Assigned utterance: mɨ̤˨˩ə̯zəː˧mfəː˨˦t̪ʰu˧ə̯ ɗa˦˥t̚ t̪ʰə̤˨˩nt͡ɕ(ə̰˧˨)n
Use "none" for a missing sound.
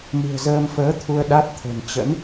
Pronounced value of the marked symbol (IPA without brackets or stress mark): ə̰˧˥